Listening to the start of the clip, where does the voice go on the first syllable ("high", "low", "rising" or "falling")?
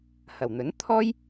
low